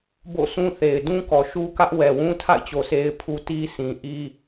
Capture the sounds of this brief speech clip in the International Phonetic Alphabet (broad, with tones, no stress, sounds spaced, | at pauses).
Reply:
b o̰˦˨ sʰ ũ˦ θ e˨ ɪ̯ d ũ˦ k ɔ˨ ʃ u˦ k ä˦ ʔ w ɛ˨ w ũ˦ tʰ a̰˦˨ ɪ̯ t͡ɕ o˨ sʰ e˦ ɪ̯ pʰ u˦ t i˦ sʰ ĩ˨ ʔ i˦